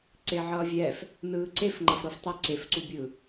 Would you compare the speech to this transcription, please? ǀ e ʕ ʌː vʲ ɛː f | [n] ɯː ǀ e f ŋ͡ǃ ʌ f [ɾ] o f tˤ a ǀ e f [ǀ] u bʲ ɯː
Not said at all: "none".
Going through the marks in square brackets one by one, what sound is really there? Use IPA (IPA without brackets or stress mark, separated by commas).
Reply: n, ɾ, ǀ